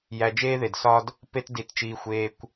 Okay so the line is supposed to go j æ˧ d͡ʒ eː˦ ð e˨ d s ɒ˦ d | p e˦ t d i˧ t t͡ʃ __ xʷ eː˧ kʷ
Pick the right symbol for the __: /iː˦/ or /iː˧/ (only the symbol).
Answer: iː˧